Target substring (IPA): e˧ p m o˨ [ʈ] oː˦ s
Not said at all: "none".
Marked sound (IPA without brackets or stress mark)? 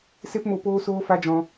p